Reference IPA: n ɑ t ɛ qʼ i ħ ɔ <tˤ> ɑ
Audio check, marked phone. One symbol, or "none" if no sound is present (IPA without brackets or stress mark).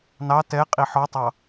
tˤ